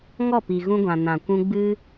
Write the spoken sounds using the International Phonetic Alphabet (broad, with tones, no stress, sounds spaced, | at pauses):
ŋ ɔ˦˨ p i˨ ɣ ũ˧ ɡʷ ã˨ n ã˨ kʷ ũ˧ ɡ͡b ɨ˦